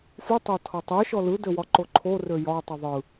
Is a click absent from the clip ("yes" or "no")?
no